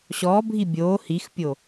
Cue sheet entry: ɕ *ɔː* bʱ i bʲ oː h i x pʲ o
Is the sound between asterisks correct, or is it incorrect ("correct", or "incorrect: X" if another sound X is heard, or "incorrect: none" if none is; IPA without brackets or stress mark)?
correct